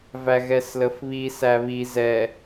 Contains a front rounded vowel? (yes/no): no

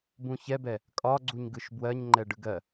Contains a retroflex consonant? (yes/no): yes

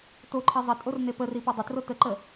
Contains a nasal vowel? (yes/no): no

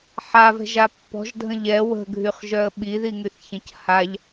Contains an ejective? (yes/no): no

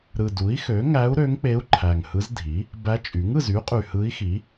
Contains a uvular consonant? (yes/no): yes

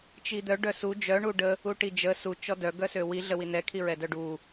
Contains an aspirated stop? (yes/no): yes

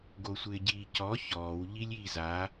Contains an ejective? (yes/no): no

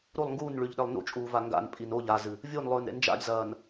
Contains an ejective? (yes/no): yes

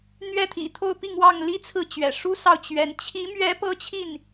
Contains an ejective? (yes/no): no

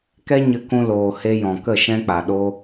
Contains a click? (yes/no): no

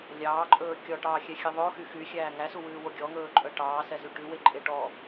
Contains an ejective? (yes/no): yes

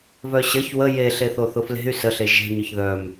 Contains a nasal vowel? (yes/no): no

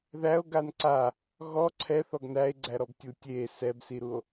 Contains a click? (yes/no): yes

